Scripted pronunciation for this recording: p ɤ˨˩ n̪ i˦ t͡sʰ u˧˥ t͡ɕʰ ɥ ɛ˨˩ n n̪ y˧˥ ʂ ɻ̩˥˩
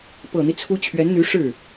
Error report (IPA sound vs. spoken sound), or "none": ɛ˨˩ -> ɛ˧˥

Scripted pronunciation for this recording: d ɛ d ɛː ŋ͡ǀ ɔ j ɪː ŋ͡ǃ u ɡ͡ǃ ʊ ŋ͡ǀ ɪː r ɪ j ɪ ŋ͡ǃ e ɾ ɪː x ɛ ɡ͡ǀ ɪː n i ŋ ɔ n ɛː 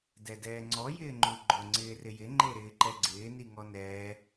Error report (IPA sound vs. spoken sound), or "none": x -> ǃ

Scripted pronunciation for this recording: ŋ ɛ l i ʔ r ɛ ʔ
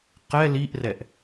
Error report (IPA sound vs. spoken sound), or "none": ŋ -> q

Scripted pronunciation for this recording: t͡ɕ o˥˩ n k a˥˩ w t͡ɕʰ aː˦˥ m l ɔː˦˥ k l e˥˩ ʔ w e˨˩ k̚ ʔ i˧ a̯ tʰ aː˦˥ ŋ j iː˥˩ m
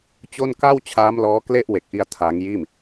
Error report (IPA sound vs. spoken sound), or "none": none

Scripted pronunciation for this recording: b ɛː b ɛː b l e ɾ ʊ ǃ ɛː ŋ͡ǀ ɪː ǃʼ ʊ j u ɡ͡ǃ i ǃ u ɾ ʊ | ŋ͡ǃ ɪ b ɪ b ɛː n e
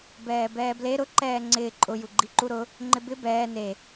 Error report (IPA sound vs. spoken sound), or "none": none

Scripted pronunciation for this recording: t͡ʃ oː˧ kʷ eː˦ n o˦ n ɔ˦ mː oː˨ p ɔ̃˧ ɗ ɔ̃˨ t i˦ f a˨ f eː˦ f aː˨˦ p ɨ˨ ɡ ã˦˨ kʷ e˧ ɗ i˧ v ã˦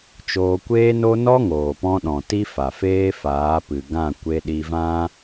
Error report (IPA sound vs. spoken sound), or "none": mː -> ŋ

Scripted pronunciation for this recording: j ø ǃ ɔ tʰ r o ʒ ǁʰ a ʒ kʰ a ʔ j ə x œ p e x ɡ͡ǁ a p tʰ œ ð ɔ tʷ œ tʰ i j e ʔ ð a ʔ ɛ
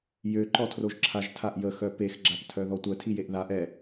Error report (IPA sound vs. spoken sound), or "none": kʰ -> tʰ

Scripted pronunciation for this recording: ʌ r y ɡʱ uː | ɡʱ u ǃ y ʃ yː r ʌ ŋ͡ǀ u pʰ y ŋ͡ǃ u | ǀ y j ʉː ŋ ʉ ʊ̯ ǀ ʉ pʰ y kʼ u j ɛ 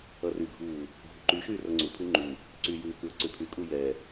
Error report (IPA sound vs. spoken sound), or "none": ŋ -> k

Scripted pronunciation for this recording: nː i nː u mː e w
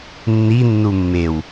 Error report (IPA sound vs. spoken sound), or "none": none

